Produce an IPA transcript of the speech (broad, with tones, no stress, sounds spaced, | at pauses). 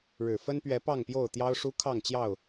ɻ ɻ̩˨˩ f ə˦ n p ɥ ɛ˨˦ p ɑ˥˨ ŋ p j o˥˨ ʊ̯ t̪ j ɑ˦ ʊ̯ ʂ u˦ kʰ ɑ˥˨ ŋ t͡ɕ j ɑ˥˨ ʊ̯